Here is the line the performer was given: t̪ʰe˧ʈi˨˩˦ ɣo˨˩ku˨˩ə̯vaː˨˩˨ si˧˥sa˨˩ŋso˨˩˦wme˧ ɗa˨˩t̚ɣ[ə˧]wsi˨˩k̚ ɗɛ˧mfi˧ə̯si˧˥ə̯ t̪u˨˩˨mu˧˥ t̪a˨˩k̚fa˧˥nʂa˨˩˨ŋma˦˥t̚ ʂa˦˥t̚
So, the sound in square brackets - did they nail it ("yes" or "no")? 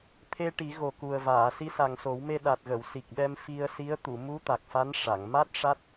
no